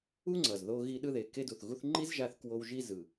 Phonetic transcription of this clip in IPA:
u˥ ŋ͡ǀ ʌ˩ z ð o˧ ɣ i˧ ɗ ɯ˧ ð e˩ k e˧ d u˩ θ ɣ u˧ θ ŋ͡ǃ i˥ z ʒ a˧ θ k w o˧ w ʒ i˧ z ɯ˩

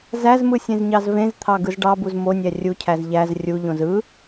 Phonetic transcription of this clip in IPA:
z æ z m ɯ sʲ ẽ z ɲ ɑ z v ẽ z t̪ʰ ɑ ɡ ɯ z ɖ ɑ b u z m o nʲ æ rʲ u cʰ æ z ʎ æ z rʲ u ʎ õ z ɯ

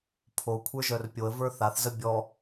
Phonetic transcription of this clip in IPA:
pʰ o kʷʰ ə˞ ʒ œ r pʲ o ə̯ v ə˞ θ a θ z ə bʲ ɔ

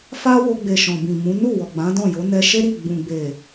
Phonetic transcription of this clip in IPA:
f a˦ w o˧ ɡ͡b e˨ ʃ ɔ̃˨ b ĩ˨ m ũ˨˦ n u˦˨ w ɔ˨ ɡ͡b ã˨˦ d ɔ̃˦˨ j o˨˦ n ɛ˧ ʃ e˦ ɾ i˦˨ ɡ͡b ũ˨ ɡ͡b e˨

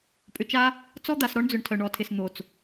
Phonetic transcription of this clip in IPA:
pʼ ʏ˨ t͡ʃ a˦ | t͡s ɔ˦ d̪ a˨ s ɾ ɔ˦ ɳ d͡z ʏ˨ ɳ tʰ œ˨ ɳ ɔ˨ tʰ ɪ˨ s n̪ o˨ t͡s

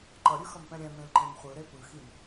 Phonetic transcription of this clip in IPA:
ǃ ʌ ɾʲ ɯ x ʌ m p ɛ̃ ɾʲ ɛ̃ m ẽ l ǃ ẽ m χʷ ɯ ɾ e p ɯ x i m

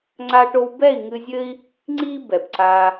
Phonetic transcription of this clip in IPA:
ŋ͡ǀ a˧ ʈ o˧ w b ɛ˦˨ i̯ ŋ ɨ˧ zʲ ɘ˦ i̯ | ŋ͡ǀ i˦ b ɛ˨ b ǀ a˧

